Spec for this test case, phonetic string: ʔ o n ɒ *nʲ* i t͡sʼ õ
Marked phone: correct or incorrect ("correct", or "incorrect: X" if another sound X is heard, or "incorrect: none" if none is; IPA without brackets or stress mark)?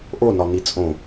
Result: incorrect: n